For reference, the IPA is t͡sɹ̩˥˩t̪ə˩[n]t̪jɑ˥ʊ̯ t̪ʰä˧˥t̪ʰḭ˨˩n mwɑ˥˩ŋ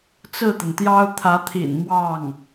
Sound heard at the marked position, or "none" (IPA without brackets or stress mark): n